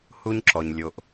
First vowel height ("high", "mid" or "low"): high